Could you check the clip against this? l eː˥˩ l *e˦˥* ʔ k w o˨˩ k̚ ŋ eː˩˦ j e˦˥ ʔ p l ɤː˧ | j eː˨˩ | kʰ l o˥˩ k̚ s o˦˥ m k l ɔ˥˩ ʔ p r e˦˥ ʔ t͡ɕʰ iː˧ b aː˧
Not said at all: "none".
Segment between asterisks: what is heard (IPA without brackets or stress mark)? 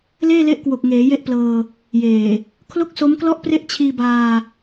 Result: e˦˥